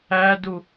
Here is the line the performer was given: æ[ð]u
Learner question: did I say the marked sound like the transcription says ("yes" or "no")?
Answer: no